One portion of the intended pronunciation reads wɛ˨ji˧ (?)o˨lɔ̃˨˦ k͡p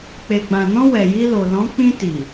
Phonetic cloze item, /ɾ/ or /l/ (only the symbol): l